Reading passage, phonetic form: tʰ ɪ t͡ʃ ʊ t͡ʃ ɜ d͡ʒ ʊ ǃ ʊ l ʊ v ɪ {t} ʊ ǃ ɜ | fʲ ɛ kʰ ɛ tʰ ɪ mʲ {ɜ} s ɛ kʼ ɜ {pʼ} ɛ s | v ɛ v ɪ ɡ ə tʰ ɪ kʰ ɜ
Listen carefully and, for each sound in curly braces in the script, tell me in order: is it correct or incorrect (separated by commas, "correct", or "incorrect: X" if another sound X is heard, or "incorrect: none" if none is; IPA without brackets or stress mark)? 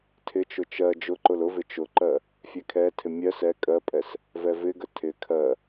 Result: incorrect: t͡ʃ, correct, correct